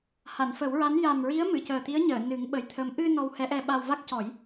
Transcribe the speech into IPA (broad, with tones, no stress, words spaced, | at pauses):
ha˨˩˨nfə˨˩˦wɹa˧˥n ja˨˩mɹi˧˥ə̯ mɨ˨˩˨cəː˨˩t̪i˧˥ə̯ɲəː˨˩˨ nɨ˨˩˦ŋɓə˨˩˦jt̪ʰə˧˥m ʔɨ˧ nɔ˧whɛ˧˥ʔɛ˧ɓa˧w va˦˥k̚cɔ˨˩˦j